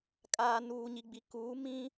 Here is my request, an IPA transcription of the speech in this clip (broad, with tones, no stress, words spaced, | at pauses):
kʼaː˨nuː˨ɲi˨ɡ͡bi˨ kuː˨˦mĩ˦